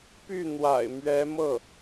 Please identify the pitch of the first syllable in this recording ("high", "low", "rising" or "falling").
falling